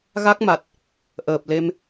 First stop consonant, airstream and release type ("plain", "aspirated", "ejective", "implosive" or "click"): plain